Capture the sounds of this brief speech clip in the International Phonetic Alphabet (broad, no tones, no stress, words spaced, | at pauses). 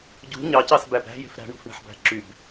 ɟṳ ɲɑcɑsbæb ɾæ̤je̤f ɾæ̤ɳṳfɳe̤ħbæ̤ ǁyb